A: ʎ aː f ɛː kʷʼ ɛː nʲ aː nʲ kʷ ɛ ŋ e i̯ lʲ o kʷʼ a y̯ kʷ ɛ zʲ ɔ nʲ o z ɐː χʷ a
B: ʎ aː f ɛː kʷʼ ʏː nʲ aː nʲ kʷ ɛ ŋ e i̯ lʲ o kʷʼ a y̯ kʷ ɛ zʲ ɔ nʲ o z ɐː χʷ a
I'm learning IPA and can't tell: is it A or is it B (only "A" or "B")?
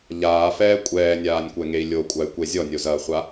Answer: A